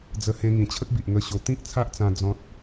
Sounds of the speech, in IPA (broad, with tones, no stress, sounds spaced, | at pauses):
d͡z ə˧ h ẽ˧ ŋ ĩ˨˩ t͡ɕʰ ə˦ k̚ b i˨ ʔ ŋ ə˧ ɕ o˨˩ t̪ ĩ˦ k̚ t͡sʰ a˦ ʔ t͡s ã˧ d͡z ɔ̃˦ t̚